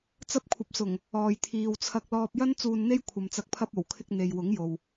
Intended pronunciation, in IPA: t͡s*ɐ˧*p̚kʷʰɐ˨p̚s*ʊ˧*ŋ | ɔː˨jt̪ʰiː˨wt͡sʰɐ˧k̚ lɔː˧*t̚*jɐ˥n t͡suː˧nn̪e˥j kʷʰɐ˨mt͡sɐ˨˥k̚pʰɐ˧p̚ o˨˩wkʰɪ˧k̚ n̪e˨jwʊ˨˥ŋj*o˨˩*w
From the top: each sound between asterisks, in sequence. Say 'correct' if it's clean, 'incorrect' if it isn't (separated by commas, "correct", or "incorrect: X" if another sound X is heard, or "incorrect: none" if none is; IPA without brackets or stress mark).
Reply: correct, incorrect: ʊ˨˩, incorrect: p̚, incorrect: o˨